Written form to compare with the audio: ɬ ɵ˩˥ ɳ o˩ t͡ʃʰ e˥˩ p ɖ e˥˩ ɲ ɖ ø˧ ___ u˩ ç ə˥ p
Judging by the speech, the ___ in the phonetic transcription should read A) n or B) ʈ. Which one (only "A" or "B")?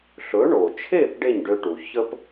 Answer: B